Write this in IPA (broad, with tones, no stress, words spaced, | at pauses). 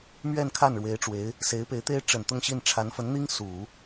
mɥɛ˥˧nkʰa˥˩n ɻwe˧˥ɪ̯ʈ͡ʂwe˧˥ɪ̯ | se˧˥ɪ̯pe˧˥ɪ̯t̪e˥ɪ̯ ʈ͡ʂə˨˩n t̪ʊ˥˧ŋɕi˥˩n ʈ͡ʂʰa˧˥nfə˧˥nn̪i˥ŋ su˨˩˦